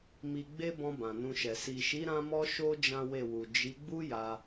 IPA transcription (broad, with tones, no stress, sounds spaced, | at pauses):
m i˧ ɡ͡b e˦ b ɔ̃˧ b ã˨ n ũ˧ ʃ ɛ˨ s i˨ ʃ i˨˦ ɾ ã˦ m ɔ˦ ʃ o˦ d͡ʒ ã˦ w e˦˨ w u˨ d͡ʒ i˨˦ ɡ͡b u˦ j a˧